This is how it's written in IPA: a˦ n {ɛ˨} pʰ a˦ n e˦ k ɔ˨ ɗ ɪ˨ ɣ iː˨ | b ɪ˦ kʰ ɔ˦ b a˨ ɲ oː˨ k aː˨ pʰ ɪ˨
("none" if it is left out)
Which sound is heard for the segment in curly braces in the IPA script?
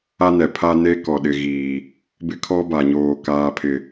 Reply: ɛ˨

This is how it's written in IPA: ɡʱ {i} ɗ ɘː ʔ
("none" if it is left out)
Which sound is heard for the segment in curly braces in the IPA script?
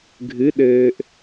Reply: ɨ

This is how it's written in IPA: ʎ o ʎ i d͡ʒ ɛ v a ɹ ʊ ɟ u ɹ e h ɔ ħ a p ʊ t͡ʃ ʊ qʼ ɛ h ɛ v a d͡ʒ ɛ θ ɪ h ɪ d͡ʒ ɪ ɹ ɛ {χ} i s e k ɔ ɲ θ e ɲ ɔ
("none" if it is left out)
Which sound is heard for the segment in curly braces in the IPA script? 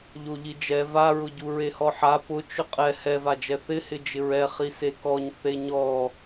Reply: χ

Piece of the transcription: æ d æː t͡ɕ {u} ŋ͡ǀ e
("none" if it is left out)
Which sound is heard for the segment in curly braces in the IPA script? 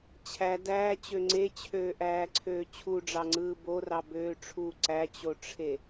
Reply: ø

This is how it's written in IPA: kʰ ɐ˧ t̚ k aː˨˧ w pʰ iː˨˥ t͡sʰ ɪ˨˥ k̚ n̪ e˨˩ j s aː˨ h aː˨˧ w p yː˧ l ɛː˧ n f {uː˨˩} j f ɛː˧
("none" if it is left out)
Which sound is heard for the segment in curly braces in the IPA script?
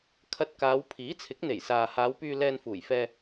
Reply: uː˨˩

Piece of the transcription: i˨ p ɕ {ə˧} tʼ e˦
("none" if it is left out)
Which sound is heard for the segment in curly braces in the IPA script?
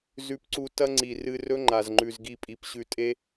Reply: ʉ˧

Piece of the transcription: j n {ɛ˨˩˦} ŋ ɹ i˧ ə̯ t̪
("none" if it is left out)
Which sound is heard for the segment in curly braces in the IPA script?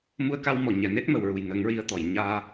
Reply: ə˨˩˦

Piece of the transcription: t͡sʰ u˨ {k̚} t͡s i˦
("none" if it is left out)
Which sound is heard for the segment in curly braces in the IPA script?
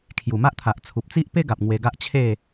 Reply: p̚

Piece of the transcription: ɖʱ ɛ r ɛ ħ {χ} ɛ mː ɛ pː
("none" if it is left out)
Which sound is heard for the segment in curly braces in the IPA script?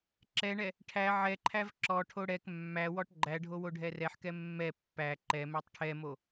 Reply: k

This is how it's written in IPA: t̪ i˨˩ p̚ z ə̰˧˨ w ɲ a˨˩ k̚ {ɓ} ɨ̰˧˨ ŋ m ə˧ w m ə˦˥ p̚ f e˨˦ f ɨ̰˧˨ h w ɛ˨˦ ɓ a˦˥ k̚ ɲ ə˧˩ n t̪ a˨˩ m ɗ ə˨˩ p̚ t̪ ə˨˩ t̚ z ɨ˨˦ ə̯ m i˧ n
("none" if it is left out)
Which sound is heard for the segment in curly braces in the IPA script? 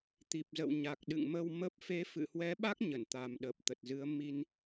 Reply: ɗ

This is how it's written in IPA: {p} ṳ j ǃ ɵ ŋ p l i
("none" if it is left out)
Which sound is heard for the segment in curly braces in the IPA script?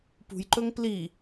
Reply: p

